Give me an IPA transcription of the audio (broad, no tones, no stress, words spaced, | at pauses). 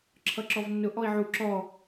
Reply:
ǁʰʌǁɔvnːʊ ʔɔi̯ʕu ǁɔ